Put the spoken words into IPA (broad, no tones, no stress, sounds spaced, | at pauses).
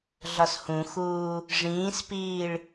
ɮ ɒ s h ũ x uː | ʐ ĩː s p iː ɭ